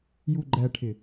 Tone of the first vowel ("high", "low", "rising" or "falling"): low